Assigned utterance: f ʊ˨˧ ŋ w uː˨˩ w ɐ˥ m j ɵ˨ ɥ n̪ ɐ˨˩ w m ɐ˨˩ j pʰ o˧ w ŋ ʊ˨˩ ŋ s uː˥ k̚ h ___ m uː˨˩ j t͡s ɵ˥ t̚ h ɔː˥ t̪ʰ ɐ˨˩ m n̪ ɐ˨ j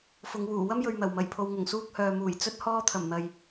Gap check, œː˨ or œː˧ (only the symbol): œː˨